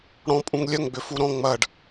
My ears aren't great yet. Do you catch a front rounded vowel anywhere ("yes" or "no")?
yes